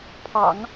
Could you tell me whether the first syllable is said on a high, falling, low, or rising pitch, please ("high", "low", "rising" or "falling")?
low